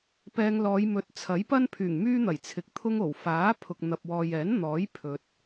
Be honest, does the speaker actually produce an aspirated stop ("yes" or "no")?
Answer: yes